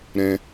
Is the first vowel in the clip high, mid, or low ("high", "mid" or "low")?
mid